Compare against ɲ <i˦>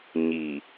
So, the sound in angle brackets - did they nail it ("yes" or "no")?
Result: no